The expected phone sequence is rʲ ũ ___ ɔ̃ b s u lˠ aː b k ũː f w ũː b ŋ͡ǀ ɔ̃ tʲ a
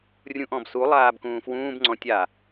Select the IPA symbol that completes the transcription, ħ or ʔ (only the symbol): ʔ